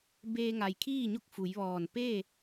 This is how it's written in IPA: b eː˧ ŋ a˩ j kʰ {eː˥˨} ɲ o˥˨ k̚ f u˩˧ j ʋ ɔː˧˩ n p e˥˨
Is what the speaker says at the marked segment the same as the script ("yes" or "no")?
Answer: no